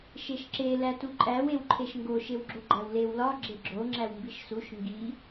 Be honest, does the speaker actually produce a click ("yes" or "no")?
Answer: yes